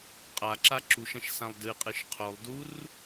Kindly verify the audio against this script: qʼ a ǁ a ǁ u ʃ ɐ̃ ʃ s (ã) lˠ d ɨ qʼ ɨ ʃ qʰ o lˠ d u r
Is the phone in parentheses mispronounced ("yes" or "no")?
no